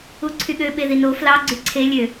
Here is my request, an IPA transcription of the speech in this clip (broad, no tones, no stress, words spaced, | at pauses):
uǀʰyɠø ɓeðino flɑ ɡ͡ǀyǀʰe lʲø